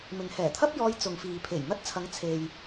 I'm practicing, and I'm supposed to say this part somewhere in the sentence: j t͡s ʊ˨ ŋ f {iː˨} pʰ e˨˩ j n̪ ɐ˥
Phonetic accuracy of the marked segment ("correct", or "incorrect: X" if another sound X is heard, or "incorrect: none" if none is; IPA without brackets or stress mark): correct